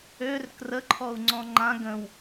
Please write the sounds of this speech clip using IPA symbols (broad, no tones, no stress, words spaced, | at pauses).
ør krəǃʰɔu̯ŋ͡ǀɔ̃ ŋ͡ǃã ɡə̃w